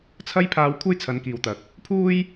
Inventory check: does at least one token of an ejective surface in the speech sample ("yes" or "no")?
no